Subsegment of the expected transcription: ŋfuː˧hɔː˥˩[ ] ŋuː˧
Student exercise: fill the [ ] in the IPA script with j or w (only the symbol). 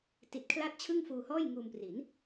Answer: j